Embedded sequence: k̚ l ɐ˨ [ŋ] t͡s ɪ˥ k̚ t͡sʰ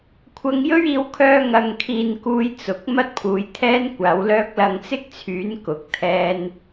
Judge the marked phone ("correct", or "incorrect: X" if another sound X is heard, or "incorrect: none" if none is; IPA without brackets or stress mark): correct